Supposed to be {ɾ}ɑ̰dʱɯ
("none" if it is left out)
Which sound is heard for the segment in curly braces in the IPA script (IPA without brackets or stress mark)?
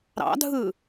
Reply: ɾ